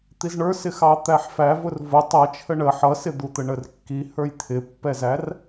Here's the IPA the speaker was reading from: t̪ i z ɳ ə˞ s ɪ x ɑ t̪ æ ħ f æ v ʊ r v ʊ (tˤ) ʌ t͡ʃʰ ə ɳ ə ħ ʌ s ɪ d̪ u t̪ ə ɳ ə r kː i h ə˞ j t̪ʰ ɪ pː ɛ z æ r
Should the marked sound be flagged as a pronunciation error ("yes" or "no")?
no